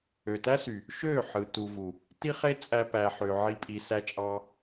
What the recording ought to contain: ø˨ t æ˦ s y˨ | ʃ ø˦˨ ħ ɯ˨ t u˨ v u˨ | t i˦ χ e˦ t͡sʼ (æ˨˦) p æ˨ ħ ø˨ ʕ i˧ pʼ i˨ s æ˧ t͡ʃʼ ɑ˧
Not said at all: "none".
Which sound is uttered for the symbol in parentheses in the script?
æ˧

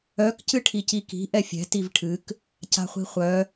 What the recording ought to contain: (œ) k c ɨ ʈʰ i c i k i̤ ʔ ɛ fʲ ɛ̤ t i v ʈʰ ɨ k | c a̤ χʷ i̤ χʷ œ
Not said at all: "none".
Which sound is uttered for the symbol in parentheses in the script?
œ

